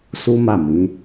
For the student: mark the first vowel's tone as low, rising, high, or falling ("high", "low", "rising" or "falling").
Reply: high